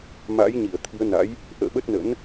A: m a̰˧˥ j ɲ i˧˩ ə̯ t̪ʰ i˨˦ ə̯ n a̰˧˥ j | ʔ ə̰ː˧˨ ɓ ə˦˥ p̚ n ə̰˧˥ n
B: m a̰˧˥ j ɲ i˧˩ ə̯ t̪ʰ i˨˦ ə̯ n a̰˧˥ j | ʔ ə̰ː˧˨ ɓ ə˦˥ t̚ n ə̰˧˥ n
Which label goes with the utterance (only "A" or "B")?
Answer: B